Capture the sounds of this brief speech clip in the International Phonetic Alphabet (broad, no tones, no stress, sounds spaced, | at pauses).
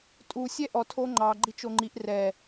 tʼ u sʲ ɛ ʔ ɔ tʰ o ŋ͡ǃ ɑ ɡ͡ǃ i t͡ʃ o ŋ͡ǃ i ʔ r ɛ